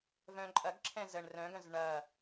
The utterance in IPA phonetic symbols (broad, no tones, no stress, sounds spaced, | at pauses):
v œ̃ ǃʼ ɐ ɡ ǁʰ ɛ̃ z ə ɳ r œ̃ ɡ œ̃ z ɳ ɐ